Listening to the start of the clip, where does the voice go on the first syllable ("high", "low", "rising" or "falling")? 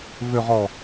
low